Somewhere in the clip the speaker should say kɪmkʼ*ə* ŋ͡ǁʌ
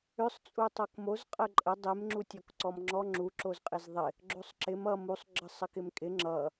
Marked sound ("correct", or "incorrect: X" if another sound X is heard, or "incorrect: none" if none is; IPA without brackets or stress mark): incorrect: ɪ